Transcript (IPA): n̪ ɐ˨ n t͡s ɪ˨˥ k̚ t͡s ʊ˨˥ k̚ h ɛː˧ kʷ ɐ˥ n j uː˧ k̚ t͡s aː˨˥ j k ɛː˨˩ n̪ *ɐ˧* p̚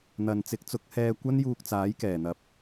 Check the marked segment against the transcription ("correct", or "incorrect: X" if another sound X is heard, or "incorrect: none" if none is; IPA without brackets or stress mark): incorrect: ɐ˨